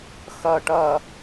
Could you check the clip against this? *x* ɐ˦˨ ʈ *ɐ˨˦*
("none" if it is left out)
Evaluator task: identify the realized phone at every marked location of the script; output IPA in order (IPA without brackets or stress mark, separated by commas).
x, ɐ˦˨